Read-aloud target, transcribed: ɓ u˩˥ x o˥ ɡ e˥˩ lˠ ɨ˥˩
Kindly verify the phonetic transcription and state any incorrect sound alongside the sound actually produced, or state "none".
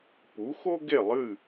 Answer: ɓ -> p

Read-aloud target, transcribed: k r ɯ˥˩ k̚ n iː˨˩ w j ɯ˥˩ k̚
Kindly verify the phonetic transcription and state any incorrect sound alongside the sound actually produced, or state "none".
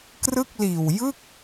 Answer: n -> l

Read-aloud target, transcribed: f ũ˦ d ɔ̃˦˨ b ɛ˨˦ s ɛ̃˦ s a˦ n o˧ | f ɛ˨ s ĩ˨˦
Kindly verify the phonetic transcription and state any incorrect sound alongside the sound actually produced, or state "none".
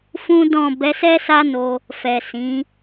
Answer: ɛ̃˦ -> ɛ˦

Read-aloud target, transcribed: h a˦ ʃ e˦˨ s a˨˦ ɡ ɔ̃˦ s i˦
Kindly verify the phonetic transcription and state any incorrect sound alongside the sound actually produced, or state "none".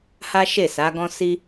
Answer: none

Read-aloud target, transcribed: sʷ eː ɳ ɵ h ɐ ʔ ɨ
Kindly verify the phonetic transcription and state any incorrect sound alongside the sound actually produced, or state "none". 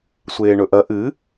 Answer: h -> ʔ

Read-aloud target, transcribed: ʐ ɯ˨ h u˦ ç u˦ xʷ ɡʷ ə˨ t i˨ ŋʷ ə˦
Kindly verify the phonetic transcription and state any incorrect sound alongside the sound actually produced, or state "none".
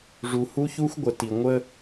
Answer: ɯ˨ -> u˨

